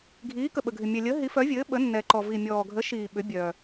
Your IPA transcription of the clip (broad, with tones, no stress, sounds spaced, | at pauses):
ɡʱ iː˨˥ k ə˨ ɓ ə˨ ɡʱ ɪ˨ mʲ ɛ˨ lʲ əː˨˥ ɦ i˨˥ f œ˨˥ vʲ ɘː˨˥ ɓ ə˨˥ nː ɛ˨ ǃ ɔ˨ v i˨ mʲ ɔː˨ ɡʱ ə˨˥ ʃ iː˨ ɓ ʏ˨˥ bʲ œ˨